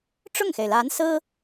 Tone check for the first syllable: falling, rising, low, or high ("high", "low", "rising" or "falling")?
falling